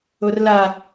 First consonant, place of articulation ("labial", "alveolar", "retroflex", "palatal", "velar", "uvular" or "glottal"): alveolar